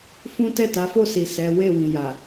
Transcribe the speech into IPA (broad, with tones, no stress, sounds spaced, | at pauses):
f ũ˦ t ɛ˦˨ t a˨˦ f o˦˨ s i˨ s ɛ˨˦ w e˦˨ w ĩ˨ j a˨